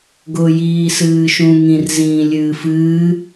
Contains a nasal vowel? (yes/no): yes